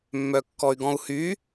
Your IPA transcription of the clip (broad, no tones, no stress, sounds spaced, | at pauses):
mː œ kː ɔ y̯ ɡ ɔ̃ u̯ h y